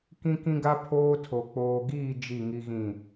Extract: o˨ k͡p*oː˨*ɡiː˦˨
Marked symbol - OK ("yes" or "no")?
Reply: yes